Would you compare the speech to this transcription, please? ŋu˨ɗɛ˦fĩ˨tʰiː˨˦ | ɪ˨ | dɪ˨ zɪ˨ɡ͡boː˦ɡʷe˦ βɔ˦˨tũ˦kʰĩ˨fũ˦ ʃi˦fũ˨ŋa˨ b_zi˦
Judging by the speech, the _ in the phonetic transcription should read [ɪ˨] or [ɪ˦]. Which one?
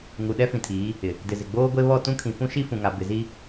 ɪ˨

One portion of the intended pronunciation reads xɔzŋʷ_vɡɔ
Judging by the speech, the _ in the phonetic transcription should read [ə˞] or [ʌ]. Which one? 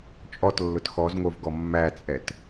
ə˞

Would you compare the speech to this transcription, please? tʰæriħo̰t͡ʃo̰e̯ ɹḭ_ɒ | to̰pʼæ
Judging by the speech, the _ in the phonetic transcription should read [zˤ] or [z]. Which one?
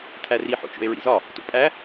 z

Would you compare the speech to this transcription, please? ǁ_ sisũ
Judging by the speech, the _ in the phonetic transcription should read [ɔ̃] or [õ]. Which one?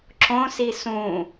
õ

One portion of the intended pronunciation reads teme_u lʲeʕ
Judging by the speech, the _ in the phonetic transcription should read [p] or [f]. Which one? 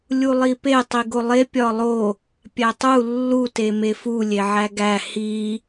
f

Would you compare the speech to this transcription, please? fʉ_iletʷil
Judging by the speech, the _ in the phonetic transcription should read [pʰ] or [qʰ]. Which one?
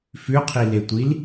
qʰ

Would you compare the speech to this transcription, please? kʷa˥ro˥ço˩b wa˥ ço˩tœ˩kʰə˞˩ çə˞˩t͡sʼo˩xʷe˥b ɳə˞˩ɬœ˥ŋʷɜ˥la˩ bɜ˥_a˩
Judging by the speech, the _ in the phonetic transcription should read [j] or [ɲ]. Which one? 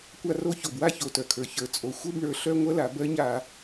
ɲ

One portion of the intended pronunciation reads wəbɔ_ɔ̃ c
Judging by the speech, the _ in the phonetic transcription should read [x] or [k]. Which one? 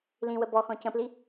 x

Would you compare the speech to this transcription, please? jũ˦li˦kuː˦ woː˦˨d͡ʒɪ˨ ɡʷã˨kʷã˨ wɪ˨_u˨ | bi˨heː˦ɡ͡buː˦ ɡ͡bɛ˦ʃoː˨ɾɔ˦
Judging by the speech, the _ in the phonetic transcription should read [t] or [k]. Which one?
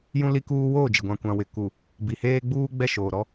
k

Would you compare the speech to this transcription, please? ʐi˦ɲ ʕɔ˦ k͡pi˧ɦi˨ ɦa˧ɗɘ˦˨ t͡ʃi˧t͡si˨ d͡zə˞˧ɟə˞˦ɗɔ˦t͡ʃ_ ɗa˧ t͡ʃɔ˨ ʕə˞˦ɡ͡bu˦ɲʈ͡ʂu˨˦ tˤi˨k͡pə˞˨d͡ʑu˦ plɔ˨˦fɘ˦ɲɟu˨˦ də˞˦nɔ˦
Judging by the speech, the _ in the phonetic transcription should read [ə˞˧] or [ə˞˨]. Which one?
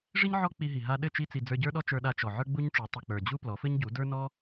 ə˞˧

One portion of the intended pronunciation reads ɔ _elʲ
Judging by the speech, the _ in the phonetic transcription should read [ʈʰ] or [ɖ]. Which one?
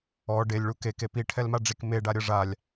ɖ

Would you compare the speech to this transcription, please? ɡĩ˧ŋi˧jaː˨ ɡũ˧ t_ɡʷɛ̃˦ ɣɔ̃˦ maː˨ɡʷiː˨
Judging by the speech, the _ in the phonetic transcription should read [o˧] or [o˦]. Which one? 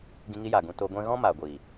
o˧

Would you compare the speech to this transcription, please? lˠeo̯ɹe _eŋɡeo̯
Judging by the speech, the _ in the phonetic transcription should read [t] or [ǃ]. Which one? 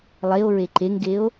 ǃ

